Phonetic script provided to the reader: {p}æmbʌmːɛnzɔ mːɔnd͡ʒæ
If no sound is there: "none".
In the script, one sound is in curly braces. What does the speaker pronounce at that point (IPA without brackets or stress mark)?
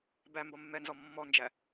b